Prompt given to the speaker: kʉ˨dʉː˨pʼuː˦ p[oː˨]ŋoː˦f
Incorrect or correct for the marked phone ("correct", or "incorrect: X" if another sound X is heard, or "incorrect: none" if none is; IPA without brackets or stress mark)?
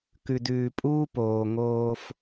correct